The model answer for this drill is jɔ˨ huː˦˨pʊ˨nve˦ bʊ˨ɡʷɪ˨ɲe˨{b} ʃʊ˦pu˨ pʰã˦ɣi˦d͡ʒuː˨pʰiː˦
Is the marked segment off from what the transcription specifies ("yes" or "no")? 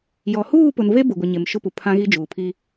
yes